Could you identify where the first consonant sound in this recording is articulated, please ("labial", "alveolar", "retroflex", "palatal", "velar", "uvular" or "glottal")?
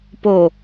labial